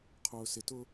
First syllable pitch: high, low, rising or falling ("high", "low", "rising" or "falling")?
low